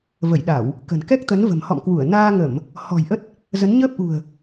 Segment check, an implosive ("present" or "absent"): present